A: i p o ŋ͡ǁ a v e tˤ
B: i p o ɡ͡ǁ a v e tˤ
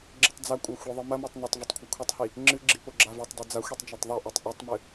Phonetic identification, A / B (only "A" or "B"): B